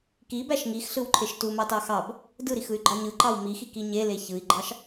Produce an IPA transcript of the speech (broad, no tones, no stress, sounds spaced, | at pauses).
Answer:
k i b æ ʃ ŋ i x ɬ ɯ w ǃʰ e ʃ t u m ɑ t ɑ x ɑ b | d ɯ ɾ i x ɯ y̯ ɡ͡ǃ ɑ ɲ ɯ ǃ ɑ w m i x i k i ɲ e l e ç ɯ i̯ ɡ͡ǃ ɑ ʃ